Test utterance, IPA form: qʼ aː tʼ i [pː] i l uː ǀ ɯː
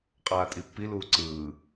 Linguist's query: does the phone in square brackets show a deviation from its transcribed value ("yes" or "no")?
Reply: no